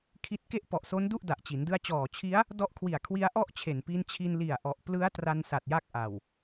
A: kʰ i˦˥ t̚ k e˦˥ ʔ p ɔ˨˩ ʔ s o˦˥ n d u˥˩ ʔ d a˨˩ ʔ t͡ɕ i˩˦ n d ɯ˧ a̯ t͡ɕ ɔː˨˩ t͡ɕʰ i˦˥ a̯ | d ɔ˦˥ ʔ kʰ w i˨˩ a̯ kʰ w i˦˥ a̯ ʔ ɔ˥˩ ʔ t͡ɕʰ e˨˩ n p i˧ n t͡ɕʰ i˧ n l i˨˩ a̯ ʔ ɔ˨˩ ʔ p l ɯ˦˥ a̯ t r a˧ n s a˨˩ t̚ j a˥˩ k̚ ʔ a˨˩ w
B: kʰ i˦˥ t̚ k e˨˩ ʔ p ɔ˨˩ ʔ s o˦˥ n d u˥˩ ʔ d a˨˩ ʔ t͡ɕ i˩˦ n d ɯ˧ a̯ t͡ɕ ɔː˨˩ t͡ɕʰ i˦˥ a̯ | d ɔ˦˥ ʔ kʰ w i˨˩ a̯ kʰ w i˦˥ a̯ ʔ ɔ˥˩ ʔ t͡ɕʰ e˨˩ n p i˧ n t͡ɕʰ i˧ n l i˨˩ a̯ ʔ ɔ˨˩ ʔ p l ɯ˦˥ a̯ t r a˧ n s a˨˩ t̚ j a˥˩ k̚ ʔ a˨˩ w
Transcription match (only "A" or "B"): A